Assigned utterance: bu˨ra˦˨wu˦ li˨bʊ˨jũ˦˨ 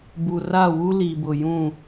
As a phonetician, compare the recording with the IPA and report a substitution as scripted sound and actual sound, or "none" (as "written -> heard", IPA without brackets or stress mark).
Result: none